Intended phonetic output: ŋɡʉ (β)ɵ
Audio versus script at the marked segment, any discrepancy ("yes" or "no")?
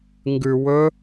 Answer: yes